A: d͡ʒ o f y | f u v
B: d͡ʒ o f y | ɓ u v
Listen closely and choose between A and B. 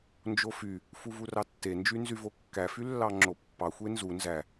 A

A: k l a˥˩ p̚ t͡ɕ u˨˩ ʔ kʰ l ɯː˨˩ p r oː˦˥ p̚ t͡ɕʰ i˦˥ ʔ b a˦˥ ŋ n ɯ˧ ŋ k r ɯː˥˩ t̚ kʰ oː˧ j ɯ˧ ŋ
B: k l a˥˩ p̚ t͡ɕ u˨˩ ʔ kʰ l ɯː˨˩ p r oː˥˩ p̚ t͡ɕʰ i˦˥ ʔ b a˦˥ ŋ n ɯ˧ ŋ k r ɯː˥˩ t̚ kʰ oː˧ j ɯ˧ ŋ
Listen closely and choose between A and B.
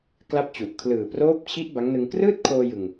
A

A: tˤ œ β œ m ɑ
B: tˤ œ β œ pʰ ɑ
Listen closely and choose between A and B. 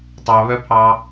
B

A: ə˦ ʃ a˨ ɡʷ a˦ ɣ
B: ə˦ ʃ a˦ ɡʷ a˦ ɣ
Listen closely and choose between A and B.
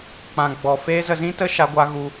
B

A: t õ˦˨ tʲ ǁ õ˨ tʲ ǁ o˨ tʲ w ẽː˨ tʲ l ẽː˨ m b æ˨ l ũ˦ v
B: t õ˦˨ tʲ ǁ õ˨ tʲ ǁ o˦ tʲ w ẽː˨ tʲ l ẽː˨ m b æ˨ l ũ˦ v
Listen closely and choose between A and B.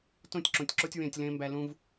B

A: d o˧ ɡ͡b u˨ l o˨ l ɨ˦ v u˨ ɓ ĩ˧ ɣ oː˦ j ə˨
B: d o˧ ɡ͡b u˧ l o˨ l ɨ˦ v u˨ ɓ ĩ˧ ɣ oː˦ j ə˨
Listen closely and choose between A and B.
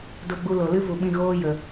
B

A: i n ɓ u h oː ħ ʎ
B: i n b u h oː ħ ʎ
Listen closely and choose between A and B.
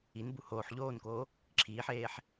B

